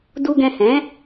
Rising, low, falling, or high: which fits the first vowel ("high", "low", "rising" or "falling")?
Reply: low